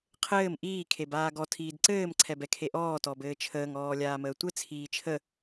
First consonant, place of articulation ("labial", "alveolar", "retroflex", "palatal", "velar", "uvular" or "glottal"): uvular